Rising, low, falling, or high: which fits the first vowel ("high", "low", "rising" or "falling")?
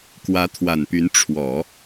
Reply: rising